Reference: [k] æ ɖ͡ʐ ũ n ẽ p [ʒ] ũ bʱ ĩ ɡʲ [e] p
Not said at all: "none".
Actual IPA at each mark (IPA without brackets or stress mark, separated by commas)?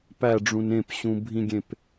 p, ɕ, ẽ